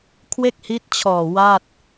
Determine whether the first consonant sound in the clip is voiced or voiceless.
voiceless